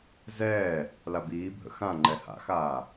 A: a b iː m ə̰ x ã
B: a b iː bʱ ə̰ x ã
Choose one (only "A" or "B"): B